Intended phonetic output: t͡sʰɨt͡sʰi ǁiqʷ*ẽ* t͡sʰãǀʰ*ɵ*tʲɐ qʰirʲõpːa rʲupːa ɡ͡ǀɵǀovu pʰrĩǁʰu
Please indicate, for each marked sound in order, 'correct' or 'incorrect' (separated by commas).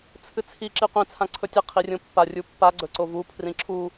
incorrect, correct